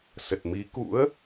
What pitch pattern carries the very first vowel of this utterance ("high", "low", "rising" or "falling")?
low